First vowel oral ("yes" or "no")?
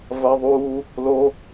yes